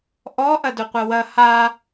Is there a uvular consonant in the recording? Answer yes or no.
yes